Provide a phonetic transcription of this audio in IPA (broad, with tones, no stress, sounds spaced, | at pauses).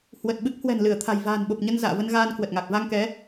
h w ə˨˩ t̚ ɓ ɨ˦˥ k̚ h w ɛ̤˨˩ n l ɨ˧˩ ə̯ t̪ʰ a̤˨˩ j v a̤ː˨˩ n ɓ o˨˩ p̚ ɲ ə˧ n z a̰ː˧˨ v ə˧ n ɣ aː˧ n k w ə˨˩ t̚ ŋ a˨˩ k̚ v a˧ ŋ k ɛ˨˦